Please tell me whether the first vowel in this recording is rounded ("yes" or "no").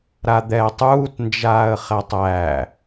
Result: no